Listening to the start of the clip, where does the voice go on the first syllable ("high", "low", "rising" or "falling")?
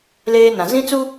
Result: high